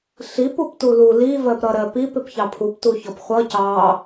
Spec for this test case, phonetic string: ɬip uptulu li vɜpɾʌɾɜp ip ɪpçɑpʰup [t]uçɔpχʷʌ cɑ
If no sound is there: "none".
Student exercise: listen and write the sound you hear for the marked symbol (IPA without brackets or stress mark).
t